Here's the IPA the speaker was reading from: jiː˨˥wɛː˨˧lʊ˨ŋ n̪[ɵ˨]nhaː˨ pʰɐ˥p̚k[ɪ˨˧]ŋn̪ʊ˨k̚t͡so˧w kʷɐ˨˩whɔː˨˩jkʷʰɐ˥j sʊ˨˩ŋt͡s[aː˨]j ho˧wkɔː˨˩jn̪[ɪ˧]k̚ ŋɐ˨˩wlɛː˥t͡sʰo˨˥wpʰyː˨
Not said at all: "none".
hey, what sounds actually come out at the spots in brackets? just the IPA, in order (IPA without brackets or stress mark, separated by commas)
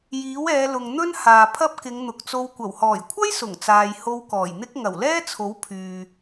ɵ˥, ɪ˨˧, aː˨, ɪ˥